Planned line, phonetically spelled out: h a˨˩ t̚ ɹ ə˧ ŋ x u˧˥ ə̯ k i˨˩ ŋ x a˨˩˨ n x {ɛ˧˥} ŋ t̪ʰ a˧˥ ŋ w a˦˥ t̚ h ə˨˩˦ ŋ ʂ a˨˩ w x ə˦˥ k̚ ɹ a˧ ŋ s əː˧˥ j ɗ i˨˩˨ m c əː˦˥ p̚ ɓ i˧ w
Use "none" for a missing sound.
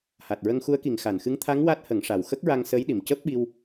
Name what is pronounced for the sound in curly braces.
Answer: ɨ˧˥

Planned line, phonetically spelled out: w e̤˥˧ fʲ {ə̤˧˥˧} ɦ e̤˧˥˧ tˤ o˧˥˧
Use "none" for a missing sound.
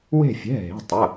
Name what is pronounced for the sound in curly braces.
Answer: ɛ̤˧˥˧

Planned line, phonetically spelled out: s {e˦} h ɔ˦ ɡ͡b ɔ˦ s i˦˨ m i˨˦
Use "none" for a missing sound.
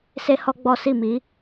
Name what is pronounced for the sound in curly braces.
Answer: e˦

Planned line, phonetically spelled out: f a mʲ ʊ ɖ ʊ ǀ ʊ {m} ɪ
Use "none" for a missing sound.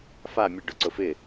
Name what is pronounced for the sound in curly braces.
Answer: f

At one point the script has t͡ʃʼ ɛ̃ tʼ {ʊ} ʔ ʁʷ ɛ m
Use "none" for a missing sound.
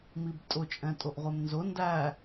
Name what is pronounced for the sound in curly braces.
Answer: ʊ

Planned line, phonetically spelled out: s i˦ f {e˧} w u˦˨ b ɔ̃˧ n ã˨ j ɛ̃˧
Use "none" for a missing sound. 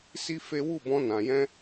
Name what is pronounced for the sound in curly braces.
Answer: e˦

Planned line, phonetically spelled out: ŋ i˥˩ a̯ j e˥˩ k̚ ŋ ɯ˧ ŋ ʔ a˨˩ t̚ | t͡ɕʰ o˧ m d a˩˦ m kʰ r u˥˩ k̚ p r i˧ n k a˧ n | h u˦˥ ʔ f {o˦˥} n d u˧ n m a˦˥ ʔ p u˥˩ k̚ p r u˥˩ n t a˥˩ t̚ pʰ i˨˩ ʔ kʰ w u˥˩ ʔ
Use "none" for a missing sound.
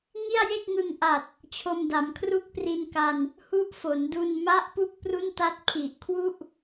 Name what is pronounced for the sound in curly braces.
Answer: o˩˦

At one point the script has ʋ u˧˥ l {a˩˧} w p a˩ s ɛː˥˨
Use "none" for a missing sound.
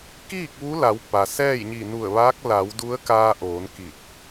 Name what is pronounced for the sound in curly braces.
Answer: a˩˧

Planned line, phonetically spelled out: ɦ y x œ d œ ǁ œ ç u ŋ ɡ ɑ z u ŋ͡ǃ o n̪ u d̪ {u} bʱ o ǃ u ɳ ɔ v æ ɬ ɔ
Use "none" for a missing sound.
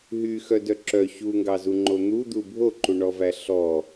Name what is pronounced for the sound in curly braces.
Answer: u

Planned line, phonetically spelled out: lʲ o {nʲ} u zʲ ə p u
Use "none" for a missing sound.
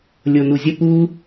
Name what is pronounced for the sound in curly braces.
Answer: n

